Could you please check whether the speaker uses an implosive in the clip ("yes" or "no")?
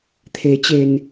no